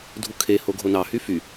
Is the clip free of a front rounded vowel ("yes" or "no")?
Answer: no